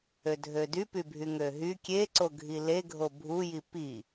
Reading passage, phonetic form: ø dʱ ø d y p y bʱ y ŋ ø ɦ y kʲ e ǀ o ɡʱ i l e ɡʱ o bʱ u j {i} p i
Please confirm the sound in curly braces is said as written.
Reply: yes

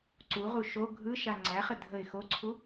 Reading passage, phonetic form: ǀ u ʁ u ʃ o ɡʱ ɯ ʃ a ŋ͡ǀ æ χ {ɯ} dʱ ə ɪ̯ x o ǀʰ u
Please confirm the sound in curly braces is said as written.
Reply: no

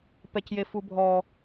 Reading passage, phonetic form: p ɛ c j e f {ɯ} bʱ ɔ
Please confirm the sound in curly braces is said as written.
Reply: no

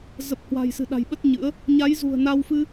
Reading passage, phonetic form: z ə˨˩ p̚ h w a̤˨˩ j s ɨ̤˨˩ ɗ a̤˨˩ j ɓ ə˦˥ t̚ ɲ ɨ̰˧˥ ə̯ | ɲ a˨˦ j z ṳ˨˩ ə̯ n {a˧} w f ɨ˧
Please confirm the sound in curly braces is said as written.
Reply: yes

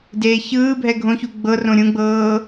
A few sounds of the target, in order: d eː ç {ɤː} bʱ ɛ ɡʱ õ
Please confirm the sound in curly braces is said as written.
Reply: no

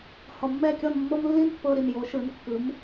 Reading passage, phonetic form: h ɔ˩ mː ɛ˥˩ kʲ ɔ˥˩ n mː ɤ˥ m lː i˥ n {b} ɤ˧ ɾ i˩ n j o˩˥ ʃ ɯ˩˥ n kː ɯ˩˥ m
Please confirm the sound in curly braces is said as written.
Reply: no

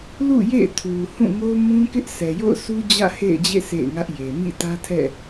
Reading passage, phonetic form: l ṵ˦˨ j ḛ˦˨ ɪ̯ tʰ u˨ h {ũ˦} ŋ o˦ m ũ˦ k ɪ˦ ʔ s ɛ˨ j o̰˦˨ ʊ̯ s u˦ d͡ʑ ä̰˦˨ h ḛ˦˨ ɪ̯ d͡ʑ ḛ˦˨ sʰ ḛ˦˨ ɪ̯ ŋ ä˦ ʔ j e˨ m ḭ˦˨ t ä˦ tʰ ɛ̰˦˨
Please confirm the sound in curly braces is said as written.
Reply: no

